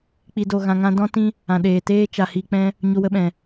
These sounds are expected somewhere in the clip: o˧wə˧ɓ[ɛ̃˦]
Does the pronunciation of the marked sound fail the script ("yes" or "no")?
yes